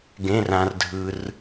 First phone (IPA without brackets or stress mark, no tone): ɡ